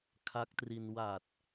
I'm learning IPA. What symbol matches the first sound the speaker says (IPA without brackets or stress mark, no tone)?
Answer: kʰ